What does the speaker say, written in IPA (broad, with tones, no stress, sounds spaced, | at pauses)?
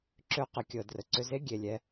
ǁ ø˧ q ə˨ kʲ ɤ˨ d r ə˨ ǀ ʏ˧ z e˦ ɡʲ e˨ lʲ ɛ˧